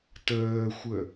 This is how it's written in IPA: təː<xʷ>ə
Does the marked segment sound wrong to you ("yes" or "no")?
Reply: no